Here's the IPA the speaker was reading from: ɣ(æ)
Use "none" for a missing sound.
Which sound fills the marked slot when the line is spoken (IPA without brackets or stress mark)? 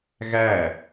æ